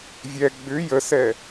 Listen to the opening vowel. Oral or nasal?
oral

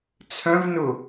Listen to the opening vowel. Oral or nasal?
nasal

